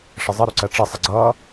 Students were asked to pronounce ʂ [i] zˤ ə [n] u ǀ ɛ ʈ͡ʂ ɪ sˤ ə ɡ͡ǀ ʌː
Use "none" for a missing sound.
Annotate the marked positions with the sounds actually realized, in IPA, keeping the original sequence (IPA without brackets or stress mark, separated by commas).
ɪ, ɾ